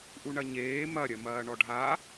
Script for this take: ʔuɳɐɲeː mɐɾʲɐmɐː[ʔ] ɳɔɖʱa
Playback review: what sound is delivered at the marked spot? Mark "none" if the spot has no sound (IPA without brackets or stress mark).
none